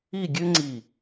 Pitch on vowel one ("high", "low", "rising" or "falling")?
falling